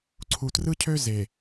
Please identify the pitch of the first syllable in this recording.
low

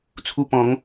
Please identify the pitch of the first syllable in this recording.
high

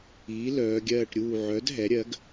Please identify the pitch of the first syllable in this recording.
rising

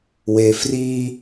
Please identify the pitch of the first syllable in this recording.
high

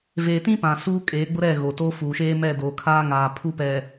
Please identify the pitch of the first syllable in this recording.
low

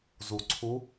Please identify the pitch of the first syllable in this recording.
low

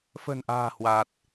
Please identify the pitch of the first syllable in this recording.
low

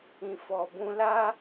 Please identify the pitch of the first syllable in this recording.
low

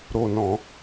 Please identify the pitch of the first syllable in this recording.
falling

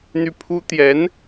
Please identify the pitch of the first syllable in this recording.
falling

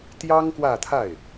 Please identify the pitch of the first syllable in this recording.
high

